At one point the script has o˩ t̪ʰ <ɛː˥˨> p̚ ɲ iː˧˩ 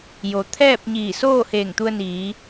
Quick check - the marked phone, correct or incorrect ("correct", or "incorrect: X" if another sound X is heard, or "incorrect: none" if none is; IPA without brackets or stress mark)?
correct